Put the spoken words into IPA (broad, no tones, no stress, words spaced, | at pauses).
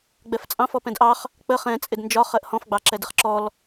ɡ͡bɛft͡sʼɑ̃f ɔpɛ̃dʔɑχ | k͡pə χɛ̃ t͡sʼɪdnd͡ʒɒ χɜʔhɔ̃fɡ͡bɑ ǁɛdɪχǁɔl